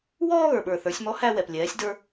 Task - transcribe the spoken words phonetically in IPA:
w ɔː˥ ɣ ə˞˩ ɓ ə˞˩ θ ə˞˩˧ sʲ m ɔ˧˥ h æ˧ w ɛ˩ p lʲ ɛː˩˧ sʲ d ə˞˧

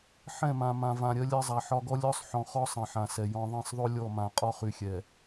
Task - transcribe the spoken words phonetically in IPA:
ħ ɛ̃˦˨ m ã˨ m ã˨ v ã˨ ɾʲ ɜ˦ lʲ ɜ˦ zˤ a˨ ħ ɒ˦ ɡ ɔ˦ lʲ ɔ˦ sˤ ħ ɔ̃˨ χ ɔ˦ sˤ ɛ̃˨ ħ ã˨ s ɛ˨ j ɔ̃˨ ðˤ ɛ̃˦˨ sˤ ðˤ o˦ lʲ ɔ˦˨ m ã˨ qʼ ɒ˦ χ y˨ xʲ ɛ˨

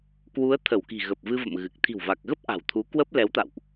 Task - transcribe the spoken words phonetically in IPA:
k w u˨˦ ə̯ t̪ʰ ə˧˩ w k i̤˨˩ ɣ ə˨˩ p̚ v ɨ˧ v ə̰˧˨ m ɣ ɨ˨˩ k̚ t̪ʰ i̤˨˩ w v a˨˩ k̚ ɣ ə˦˥ p̚ ʔ a̤˨˩ w t̪ʰ u˨˦ k w əː˦˥ p̚ l ɛ˨˦ w t̪ a̰˧˨ w ʔ

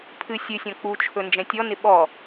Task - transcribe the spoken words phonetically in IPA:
pʰ ɨ sʲ ɨ sʲ ɔ̃ k͡p u t͡ʃʰ ɵ n d͡ʒ ɛ̃ tʲ ɔ n ɪ ɓ ɔ

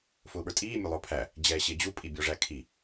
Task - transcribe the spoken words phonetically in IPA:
f ʊː ɓ ə˞ tʼ iː mʲ ʊ lˠ ʊː pʰ æ | d͡ʑ ɛː ɕ ɪː d͡ʑ u pʼ i bʲ ɔ ʐ æ kʰ i

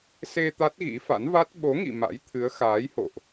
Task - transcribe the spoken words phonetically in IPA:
s e˧ t̪ a˦˥ t̚ ɣ ḭ˧˥ f a̰˧˥ n v a˦˥ t̚ ɓ o˨˦ ŋ ḭ˧˨ m a̰˧˥ j t̪ʰ ɨ˨˦ ə̯ x aː˨˦ j h o̰˧˨ ʔ

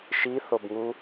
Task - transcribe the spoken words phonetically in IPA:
ʃ i θ o b ŋ u

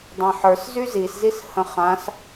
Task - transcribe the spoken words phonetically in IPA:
dˤ ã ħ ə˞ s z y z i s z i s h ə̃ χ ã s

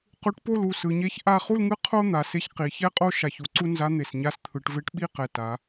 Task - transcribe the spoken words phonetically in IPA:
q u˧˥ ʈ p o˥˧ l u˩˧ s ɯ˩˧ ɲ e˧˥ ç ʔ a˥˧ χ u˥˧ l ŋ ɯ˧˥ qʰ o˥ n̪ a˩˧ s e˧˥ ç q i˩˧ ç ɛ˥˧ qʼ o˥˧ ʃ a˨˩ ç u˩˧ ǀ u˥ n z a˧˥ n̪ e˨˩ s ɲ a˧˥ s t̪ʰ ɯ˩˧ ʈ v e˧˥ ʈ ɓ i˥˧ q ɛ˨˩ t a˩˧

